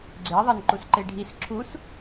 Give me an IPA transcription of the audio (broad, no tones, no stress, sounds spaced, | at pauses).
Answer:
ɡ͡ǀ ɪ ðˤ a n ǃ u s ǃ e ɖʱ i s ǁʰ u s